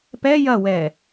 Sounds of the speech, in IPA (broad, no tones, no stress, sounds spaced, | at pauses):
p ɛ j ɐ w ɛː